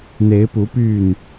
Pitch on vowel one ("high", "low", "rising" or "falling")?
rising